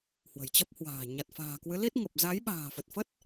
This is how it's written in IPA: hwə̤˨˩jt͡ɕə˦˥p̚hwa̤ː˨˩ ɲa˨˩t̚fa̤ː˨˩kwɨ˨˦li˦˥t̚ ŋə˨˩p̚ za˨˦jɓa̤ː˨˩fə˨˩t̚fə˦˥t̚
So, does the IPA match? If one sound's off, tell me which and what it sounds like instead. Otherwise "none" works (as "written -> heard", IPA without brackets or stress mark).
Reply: none